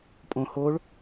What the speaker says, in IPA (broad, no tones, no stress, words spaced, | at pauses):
pʼõ hoɭ